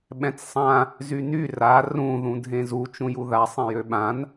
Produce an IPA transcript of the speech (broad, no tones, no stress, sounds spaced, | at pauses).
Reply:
ɓ ɛ̃ t͡s sˤ ã | z y n y r a r ũ ð ũ dʱ ẽ z u t͡ʃ ũ j u ð a sˤ ẽ j ø ɓ ã n